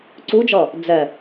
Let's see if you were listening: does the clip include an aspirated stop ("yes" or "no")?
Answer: no